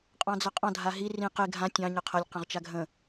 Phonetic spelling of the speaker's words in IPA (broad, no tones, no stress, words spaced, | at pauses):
qʼɑ̃d͡zɐqʼɑ̃ dʱaɦi rĩ qe ɡʱã tʲɑ̃ ɲɐqʰɐlʲ qə̃ʁt͡ʃaɡʱə̃